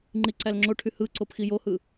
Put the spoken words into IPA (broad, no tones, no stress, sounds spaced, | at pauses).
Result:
ŋ͡ǃ i ǀ æ l ŋ͡ǁ o ʈʰ y h ɯ ǀ o p x i j o h ɯ